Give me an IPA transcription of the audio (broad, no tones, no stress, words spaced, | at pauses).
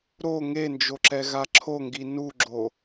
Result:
ɾo ŋend͡ʒoǁɛ ɣaǁʰoŋɡi nuɡ͡ǁo